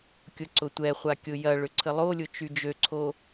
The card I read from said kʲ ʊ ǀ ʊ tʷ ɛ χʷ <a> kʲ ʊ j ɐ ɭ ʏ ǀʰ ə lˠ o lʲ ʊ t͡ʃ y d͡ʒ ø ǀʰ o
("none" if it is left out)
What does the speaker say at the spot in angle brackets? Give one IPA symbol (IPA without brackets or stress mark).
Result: a